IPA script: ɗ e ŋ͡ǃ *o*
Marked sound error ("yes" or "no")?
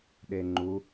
yes